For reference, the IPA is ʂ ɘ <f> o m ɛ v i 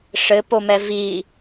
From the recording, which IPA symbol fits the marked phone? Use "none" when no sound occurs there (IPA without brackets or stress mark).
p